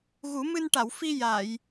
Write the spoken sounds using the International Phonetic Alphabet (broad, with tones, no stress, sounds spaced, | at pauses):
ɣ u˨˩˦ m ɨ˧ n ʈ a˨˩˨ w f i˧ j a˨˩˨ j